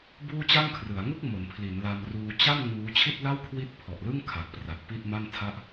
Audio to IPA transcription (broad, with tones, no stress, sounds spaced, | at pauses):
b uː˥˩ t͡ɕ a˥˩ ŋ kʰ r ɯ˩˦ a̯ ŋ u˥˩ k̚ m o˩˦ n pʰ l i˩˦ n l a˧ m r uː˧ t͡ɕ a˥˩ n ŋ uː˦˥ t͡ɕʰ i˥˩ t̚ l a˥˩ w kʰ w i˦˥ t̚ pʰ ɔ˨˩ ʔ l ɯ˥˩ ŋ kʰ a˨˩ k̚ p r a˨˩ t̚ p i˥˩ t̚ m a˥˩ n tʰ a˥˩ ʔ